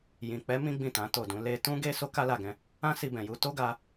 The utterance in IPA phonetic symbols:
jĩ˨k͡pɛ˨˦ mĩ˦ɡ͡bĩ˦˨tã˨˦ to˦˨dũ˨˦ le˧ tũ˦ɡe˦ so˦ka˦la˦˨ɡɛ̃˧ | ã˦ si˧bɛ̃˨ju˧ to˦ɡa˧

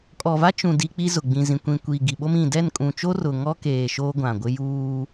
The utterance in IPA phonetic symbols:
kʼɔ˨va˦t͡ʃũ˨ di˦k͡pi˦zʊ˨ ɡ͡bĩ˨zĩ˨kʷĩ˨kʷiː˨ ɡi˨ɓo˦mĩ˨ dɛ˦˨nkʼũ˨t͡ʃo˦ rʊ˨ŋɔ˦keː˨ ʃoː˦ɡʷã˨ɡʷɪ˦ juː˦

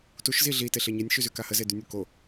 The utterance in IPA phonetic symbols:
tuʃzi ɮiteɬe ɲɛnʲʃyzyka həzedynʲu ko

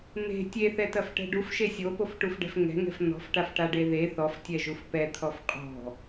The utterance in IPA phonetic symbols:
n̪e̤ tʲeθɛtɐfʈɛ̤ ɖufʃe sʲopofʈufɖɛ̤f ŋɛ̤ŋɛ̤f n̪ɔ̤fʈafʈaɖe ðe θɔftʲɛʒuf pɛt̪ʰɔf qʼɔ̤

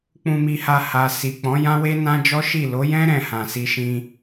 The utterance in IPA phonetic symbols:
k͡pũ˧mi˧ha˧ha˨ si˨k͡pɔ̃˨˦ jã˦we˦nã˦d͡ʒɔ˦ ʃi˦˨ lo˨˦jɛ̃˦ ɾɛ̃˦˨hã˨ si˧ʃĩ˧

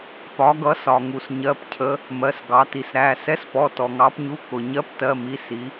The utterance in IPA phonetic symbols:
pɒ˩˧ɡʌ˩˧sɒ˩ŋu˩s ɲɜ˩˧˩pcʰə˩˧ | mɜ˩˧˩sɡɑ˩˧ti˩sɾæ˩˧˩ sɛ˨˥spɔ˩˧˩ tɔ˩ŋɑ˩˧pɲu˩˧˩ kʊ˩ ɲɜ˨˥ptɜ˩˧˩mi˩˧˩ si˩˧

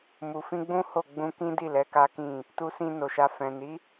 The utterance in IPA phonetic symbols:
mu˨fĩ˧ɡ͡bũ˦ ho˦˨ ɡ͡bũ˧kĩ˦di˦˨ lɛ˨˦ka˦kĩ˦˨ | tu˧sĩ˧ no˨ʃa˧ fɛ̃˨ni˨˦

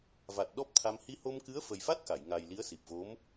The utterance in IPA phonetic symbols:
va˨˩t̚ ɗɔ˦˥p̚t̪ʰa˧m hi˧ho˧mkɨ˧˥ə̯ fə˨˩jfa˦˥t̚ ka˨˩˨j ŋa˨˩j li˧˥ə̯si˨˩p̚vo˧˥m

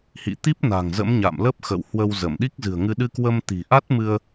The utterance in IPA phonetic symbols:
hḭ˧˨t̪i˦˥p̚ na̤˨˩ŋzə̰˧˥mɲa̰˧˨mlə˦˥p̚ xə̰˧˨whwə˧wzə˧˩m ɗi˦˥k̚zɨ̤˨˩ə̯ŋɨ˧ ɗɨ˧kwə˧m t̪i̤˨˩ʔa˦˥t̚mɨ˧ə̯

